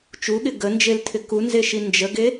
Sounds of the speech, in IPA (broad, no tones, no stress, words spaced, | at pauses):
t͡ʃuɠɪ ɡənd͡ʒeltʰɪ kunzeʃi nd͡ʒəɡe